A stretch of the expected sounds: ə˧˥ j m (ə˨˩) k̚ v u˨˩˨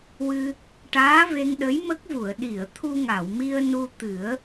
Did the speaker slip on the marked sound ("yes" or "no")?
yes